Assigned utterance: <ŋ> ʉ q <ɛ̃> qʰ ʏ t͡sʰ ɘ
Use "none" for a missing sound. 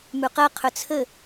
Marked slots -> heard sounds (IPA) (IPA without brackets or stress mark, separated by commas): m, ɛ